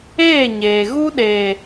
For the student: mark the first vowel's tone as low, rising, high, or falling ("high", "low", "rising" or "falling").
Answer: falling